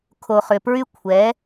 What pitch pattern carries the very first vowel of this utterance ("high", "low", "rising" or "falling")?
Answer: low